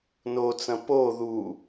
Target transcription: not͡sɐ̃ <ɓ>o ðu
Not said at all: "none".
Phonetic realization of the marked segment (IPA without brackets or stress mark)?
p